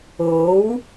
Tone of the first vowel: rising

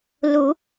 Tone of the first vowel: rising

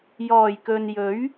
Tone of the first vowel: low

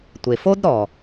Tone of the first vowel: low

